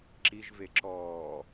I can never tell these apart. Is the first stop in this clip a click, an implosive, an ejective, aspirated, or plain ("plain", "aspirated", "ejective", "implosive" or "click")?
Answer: click